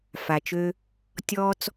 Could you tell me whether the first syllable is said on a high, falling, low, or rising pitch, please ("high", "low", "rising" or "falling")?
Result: low